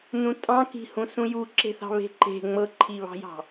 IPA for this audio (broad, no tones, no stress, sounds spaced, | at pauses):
n ũ tʼ ɑ̃ k i̤ h ũ s ũ j u ǁ e̤ θ ɑ̤ β e̤ ǃ e̤ ŋ͡m ɤ ǃʰ i β ɑ̤ j ɑ̤